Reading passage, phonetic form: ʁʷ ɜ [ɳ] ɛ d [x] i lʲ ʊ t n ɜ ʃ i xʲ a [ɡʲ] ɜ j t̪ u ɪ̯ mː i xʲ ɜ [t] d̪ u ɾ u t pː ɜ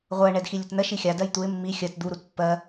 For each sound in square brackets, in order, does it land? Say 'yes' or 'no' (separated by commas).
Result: yes, yes, no, yes